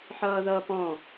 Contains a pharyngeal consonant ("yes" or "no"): yes